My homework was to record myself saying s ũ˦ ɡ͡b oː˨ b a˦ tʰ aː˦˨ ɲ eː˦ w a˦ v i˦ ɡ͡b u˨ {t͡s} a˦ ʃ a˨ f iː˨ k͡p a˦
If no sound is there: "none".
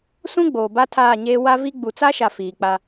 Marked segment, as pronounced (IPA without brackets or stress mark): t͡s